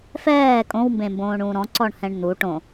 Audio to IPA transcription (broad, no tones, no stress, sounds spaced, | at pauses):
f ɛː kʼ õ w m b ẽ m b õː ɳ ũː ɾ ɔ̃ ǀ ɔ ɳ h ɛ̃ ɳ n̪ u ʈ õ